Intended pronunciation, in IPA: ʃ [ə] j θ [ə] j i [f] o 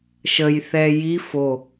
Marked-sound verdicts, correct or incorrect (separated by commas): correct, incorrect, correct